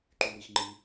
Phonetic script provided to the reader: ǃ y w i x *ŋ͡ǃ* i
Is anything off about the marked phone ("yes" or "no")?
no